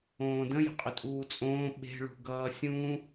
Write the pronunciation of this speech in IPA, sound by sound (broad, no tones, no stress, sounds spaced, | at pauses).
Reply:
õː d ə̃ j ə̤ qʼ ʏ tʼ uː t͡sʼ õː ɓ e̤ ɭ ṳ ɡ ʌː sʲ ũ